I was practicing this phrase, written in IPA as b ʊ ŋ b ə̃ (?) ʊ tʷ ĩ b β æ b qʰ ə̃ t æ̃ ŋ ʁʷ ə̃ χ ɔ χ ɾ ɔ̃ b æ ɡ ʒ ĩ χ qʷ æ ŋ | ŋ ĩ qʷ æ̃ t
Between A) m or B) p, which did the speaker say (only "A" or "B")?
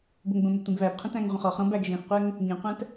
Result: A